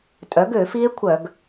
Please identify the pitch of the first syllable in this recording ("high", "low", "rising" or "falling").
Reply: rising